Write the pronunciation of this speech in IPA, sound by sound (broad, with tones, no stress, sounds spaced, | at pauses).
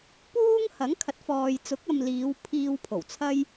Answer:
p uː˥ ŋ h ɐ˨˥ ŋ kʰ ɐ˨˥ t̚ f ɔː˨ j t͡s ʊ˨˥ k̚ ɐ˧ m l iː˨˧ w pʰ iː˧ w pʰ o˨˩ w t͡sʰ ɐ˥ j